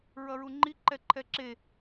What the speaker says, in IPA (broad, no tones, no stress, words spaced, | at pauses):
ɹʌɹuŋ͡ǃi ǃɛǃʰɛǁe